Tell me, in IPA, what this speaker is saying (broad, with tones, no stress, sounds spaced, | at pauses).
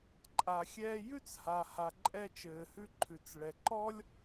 ǃʼ a˩ xʲ ɛː˧ j ʉ˥ t͡s h a˩ h a˩ ǃʼ ɛ˧ t͡ʃ ɘː˩ h ʉ˧ ǃʰ ʉ˩ t͡s ɭ ɛ˩ ǃ ɔ˥ lʲ